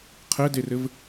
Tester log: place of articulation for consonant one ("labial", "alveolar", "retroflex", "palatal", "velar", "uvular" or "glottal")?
uvular